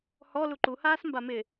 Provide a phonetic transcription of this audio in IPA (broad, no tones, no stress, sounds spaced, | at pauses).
h ɔ l u ǃ u h aː s m b a m ɪ